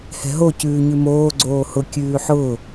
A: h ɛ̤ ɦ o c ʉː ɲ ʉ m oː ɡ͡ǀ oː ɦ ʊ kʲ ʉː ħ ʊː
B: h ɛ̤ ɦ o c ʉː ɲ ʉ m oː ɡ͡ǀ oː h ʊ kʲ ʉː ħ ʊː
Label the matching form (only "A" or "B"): B